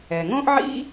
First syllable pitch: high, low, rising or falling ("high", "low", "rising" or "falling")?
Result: low